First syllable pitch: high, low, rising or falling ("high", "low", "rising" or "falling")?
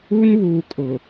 high